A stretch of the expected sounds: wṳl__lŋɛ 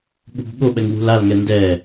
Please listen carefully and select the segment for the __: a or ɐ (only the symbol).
a